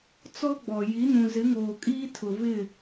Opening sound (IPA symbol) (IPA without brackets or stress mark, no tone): t͡s